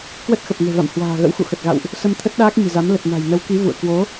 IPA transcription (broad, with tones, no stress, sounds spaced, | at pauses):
k w ə˦˥ t̚ x ə˨˩ p̚ ŋ e̤˨˩ v a̰˧˨ m h w a̤ː˨˩ ɣ ə̰˧˥ w x ṵ˧˨ x ə˨˩ t̚ ɣ a̰˧˨ w ʔ | s ə˧ m t̪ʰ ə˦˥ t̚ ɗ aː˦˥ k̚ ɲ i̤˨˩ z a˨˦ m l ə˨˩ t̚ n a̤˨˩ j n ə˨˦ w k i˨˦ v ṵ˧˨ ə̯ k w o˨˦